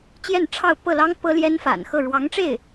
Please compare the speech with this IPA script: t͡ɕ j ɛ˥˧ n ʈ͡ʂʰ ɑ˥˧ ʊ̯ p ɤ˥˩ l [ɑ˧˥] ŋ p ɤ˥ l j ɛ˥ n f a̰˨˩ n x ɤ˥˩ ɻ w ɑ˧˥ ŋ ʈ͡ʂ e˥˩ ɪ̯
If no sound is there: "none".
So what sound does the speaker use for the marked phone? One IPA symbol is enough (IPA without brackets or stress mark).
ɑ˥